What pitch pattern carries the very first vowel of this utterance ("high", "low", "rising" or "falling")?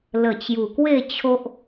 low